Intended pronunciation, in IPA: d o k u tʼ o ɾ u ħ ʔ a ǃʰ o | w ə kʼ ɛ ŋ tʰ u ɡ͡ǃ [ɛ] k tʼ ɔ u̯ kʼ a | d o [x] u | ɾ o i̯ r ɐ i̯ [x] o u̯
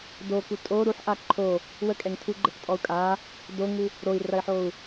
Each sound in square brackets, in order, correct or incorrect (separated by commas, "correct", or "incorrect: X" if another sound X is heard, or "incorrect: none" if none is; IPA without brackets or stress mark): incorrect: ə, incorrect: ŋ, incorrect: ħ